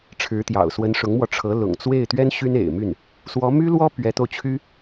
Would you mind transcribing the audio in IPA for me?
ʈ͡ʂʰɻ̩˧˥t̪jɑ̰˨˩ʊ̯ swə˧˥nʂʊ˧˥ŋmwɔ˧ ʈ͡ʂʰɤ˧˥ lʊ̰˨˩ŋ t͡swe˥˩ɪ̯t̪ɥɛ˥n ɕy˥nḛ˨˩ɪ̯my˥˩n | swɔ˧˥my˥ lwɔ˥ pɥɛ˧˥t̪o˧ʊ̯t͡ɕʰy˥

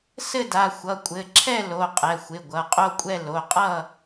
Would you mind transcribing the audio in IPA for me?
sɘ˥˨da˩˧˩ xʷʌ˩˧˩kʷʼɘ˩˧˩ǁʰɛ˥˨lo˩˧˩ qʼɛ˩˧˩xʷɪ˩˧˩ ɡʷʌ˩˧˩qʼo˥˨kʷʼɛ˥˨ lo˩˧˩qʼʌ˥˨

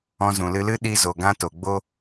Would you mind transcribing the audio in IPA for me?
ɔ̃˧zũ˨lɨ˧lɨ˦ ɗi˧ zo˨ɡã˧to˨ ɡ͡bo˦

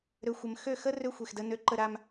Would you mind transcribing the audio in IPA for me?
ɾø˨xʷə˨m xø˦˨xə˦ rø˦xʷe˨xdə˦ nø˦ǃə˦ ɾa˦m

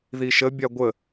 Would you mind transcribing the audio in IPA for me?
ðiʃə bʲaɡʷə

